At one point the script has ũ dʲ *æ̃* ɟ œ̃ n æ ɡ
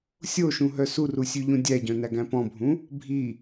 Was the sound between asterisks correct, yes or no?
no